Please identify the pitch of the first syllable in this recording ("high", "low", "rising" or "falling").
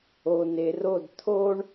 low